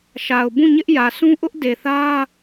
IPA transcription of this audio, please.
ʃa˨ʊ̯bũ˦˨ɲɪ˦ʔjä˨ sũ˦ʔʊ˦ʔ de˨θä˦

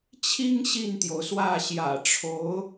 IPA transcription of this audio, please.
t͡ɕʰi˥ŋ ɕi˥˩nt̪jo˩ʊ̯swä˥˩ ɕjä̰˨˩ʈ͡ʂʰo˧˥ʊ̯

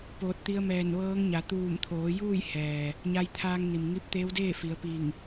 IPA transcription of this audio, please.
poː˧˩t̚t̪i˧ə̯mɛː˧˩n ʋɤː˧˥ŋɲa˩˧ t̪uː˧˩mt̪ʰoː˩˧ juː˥˨j hɛː˩ | ɲa˧jt̪ʰaː˧ŋni˩m ŋi˧p̚t̪eː˧˥wdeː˥˨ fi˩˧ə̯pi˧˩ŋ

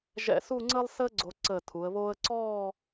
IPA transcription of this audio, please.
ʒɛ̰˧˩su˥˧ŋ͡ǀəː˥lˠ səː˥ ɡ͡ǀo˧ǀəː˧˩tʰu˩˧ə̯βoː˥ə̯ ǀɔː˥˧

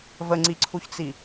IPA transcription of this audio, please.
vəŋ͡ǀiǀʰuçt͡si

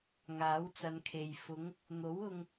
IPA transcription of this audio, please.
ŋaː˨˥wt͡sɐ˨˧nkʰe˨j fʊ˨˧ŋ | n̪o˨˥wʊ˧ŋ

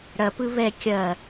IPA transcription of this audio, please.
ɽɐ pɯβɛ kʲɐ

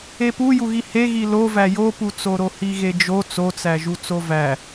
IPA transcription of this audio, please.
epujuɣi heɣi lovæ joput͡soɾo hiɣed͡ʒo t͡sot͡sæʒu t͡sovæ

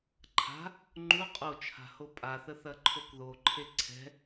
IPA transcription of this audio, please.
ǃʰa̤ | ŋ͡ǃu qʼot͡ʃʰa̤ hopʼaθə θɐǃʰokðoǃʰe ǀʰɛ̤

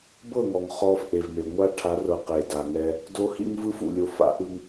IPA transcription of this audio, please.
bɤ˦˨ŋɔ˨ŋ χɔ˦fʔe˨vme˨ ŋʷa˦ʈʰa˨˦rɤ˨ qe˨da˨ŋɛ˦ | do˦ hḭ˦ŋvɯ˦f ṵ˨lʲo˨˦f a̰˦ʔɯ˦ŋ

